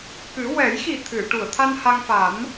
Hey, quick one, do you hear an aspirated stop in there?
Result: yes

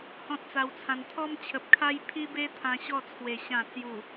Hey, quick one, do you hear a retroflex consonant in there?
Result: no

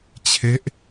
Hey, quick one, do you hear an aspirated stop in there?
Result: yes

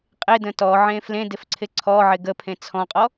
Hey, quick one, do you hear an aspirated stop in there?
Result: yes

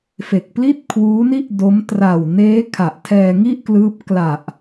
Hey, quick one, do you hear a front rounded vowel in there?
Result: no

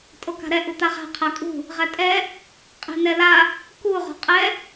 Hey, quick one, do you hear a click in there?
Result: no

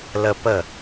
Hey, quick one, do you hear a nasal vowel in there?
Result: no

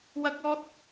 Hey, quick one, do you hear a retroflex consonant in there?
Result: no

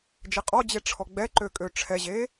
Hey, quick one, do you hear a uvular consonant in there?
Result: yes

